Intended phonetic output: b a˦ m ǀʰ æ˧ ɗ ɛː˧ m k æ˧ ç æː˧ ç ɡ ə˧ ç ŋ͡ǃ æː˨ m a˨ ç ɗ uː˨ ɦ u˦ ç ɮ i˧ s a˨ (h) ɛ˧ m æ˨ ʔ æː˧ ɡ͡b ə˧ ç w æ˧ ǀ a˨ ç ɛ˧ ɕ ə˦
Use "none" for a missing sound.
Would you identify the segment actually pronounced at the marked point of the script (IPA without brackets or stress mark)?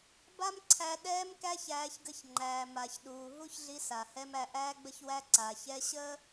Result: h